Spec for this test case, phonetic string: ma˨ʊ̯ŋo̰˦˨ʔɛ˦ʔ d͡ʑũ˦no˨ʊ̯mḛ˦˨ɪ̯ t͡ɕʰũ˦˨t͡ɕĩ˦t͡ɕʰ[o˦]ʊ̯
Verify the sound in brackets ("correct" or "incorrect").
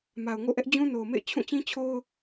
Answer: correct